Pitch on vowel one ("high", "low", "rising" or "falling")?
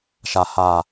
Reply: low